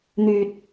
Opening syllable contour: low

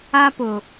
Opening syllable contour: high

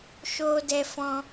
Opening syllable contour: high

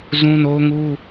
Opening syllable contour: high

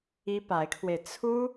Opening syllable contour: high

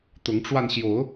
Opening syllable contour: rising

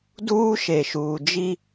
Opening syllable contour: high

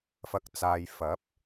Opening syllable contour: low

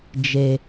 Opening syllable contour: low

